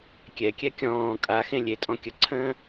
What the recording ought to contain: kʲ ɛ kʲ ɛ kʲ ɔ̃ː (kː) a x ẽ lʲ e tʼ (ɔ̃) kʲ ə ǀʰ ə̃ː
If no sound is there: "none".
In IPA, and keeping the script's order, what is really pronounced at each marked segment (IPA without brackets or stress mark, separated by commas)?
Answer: kʼ, ɔ̃